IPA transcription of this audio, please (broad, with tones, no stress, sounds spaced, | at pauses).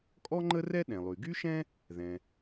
kʼ ɔ˥ ŋ͡ǃ ə˥ r ɛ˥ ɗ ɛ̃˩ lˠ y˩ ɡ y˥ ʃ ɛ̃˥ | ð ɛ̃˩